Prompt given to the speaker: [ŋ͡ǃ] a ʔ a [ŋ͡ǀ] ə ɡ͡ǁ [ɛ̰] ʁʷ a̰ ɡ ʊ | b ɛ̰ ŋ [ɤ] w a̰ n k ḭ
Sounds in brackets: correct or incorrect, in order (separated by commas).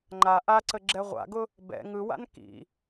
correct, incorrect, incorrect, incorrect